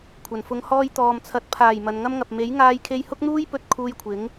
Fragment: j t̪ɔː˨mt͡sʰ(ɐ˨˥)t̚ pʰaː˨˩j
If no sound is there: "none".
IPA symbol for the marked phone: ɐ˨˥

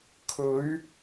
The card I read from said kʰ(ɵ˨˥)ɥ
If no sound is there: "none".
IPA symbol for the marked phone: ɵ˨˥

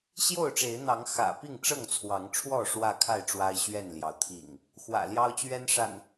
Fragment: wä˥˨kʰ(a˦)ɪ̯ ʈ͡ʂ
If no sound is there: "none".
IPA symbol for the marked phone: a˥˨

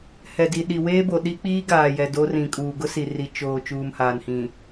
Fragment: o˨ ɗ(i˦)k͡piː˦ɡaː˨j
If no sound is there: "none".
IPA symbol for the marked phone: i˦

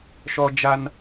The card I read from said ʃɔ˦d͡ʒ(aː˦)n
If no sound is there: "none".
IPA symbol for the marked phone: a˦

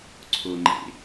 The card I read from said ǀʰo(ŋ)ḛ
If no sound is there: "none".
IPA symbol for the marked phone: ŋ͡ǃ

